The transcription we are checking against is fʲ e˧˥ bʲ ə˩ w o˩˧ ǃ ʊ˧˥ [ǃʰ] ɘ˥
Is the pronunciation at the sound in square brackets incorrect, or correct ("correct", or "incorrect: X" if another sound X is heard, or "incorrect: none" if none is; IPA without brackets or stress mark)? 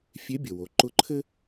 correct